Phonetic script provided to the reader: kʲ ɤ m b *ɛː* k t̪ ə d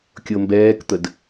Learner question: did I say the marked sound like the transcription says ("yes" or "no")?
yes